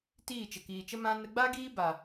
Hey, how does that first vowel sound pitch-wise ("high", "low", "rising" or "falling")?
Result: falling